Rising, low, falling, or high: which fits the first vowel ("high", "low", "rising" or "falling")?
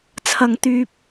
low